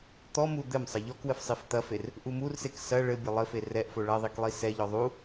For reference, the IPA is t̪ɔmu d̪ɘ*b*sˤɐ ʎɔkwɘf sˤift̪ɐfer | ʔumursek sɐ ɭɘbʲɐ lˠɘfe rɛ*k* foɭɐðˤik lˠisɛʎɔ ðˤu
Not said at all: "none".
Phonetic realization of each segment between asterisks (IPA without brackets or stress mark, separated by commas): m, ʔ